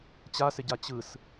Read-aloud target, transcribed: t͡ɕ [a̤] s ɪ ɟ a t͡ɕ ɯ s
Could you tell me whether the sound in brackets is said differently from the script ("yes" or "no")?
yes